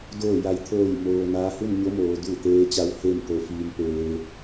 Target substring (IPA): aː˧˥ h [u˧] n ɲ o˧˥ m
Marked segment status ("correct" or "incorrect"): incorrect